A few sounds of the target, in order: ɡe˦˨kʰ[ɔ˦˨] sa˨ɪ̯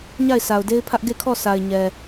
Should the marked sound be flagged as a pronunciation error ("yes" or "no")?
no